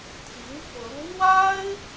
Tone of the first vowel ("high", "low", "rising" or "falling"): rising